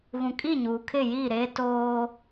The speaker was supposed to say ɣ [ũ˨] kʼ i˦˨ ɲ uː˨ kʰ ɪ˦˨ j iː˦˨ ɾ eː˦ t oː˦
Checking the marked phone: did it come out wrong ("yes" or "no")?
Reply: no